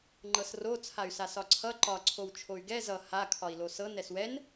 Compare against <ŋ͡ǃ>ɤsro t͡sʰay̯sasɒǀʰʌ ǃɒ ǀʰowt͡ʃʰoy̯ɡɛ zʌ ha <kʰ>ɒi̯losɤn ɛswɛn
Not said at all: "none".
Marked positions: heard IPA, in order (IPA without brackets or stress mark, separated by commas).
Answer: ŋ͡ǃ, kʰ